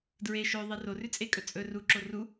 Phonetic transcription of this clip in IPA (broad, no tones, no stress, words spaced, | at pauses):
dɹe ʃɵðˤi rorʉt͡sʼekʼɵ t͡sʼɵ ruǁo ru